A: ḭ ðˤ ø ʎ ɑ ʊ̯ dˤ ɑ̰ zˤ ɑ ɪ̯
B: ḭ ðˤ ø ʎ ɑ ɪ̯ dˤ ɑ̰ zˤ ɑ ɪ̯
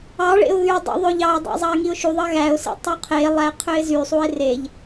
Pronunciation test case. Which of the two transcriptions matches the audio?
B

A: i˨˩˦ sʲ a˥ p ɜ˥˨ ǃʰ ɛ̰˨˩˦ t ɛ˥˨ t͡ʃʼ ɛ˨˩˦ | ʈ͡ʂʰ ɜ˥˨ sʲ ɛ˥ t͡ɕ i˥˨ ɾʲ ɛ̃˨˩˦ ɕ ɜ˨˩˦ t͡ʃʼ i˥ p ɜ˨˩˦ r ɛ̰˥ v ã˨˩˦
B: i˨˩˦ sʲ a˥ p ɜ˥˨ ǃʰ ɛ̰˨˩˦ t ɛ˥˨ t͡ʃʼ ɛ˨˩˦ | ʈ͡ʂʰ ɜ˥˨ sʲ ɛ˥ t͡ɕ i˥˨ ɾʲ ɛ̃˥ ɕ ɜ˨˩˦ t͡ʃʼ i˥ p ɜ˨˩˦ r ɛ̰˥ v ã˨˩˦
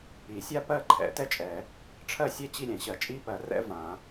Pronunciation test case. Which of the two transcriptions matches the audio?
A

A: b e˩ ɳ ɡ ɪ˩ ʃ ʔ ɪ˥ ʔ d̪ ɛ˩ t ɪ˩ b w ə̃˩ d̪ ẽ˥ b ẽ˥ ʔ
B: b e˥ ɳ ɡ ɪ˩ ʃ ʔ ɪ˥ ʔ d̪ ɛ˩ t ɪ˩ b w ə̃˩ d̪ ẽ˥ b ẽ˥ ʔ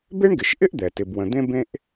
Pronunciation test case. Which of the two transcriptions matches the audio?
B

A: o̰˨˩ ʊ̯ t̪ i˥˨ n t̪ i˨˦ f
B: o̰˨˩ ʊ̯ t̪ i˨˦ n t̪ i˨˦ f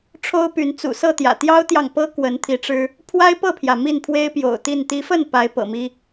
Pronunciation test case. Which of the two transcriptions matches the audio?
A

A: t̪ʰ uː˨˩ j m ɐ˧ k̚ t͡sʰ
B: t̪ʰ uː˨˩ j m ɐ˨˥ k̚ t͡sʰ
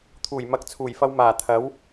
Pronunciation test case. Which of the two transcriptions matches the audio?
B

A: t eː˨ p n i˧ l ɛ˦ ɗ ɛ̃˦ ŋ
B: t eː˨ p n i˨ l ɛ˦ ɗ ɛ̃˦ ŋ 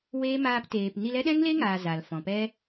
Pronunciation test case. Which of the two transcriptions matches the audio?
A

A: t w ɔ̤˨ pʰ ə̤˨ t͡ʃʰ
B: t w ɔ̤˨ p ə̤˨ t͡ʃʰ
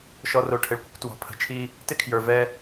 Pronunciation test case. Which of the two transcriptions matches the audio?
A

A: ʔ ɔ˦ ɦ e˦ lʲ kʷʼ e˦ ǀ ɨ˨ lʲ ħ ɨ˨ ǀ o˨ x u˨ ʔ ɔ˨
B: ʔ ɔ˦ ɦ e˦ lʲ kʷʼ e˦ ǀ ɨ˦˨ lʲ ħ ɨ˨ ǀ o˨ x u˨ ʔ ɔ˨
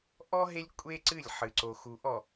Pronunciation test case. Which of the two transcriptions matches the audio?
B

